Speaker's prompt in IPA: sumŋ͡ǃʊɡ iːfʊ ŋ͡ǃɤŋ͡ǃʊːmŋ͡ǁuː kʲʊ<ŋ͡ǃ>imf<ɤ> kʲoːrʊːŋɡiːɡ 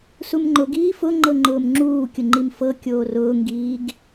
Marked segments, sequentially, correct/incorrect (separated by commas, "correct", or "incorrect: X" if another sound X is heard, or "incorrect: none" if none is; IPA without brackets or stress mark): correct, correct